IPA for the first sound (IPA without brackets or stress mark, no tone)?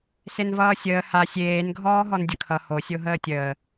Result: s